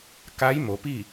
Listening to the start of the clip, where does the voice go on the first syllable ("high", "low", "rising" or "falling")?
rising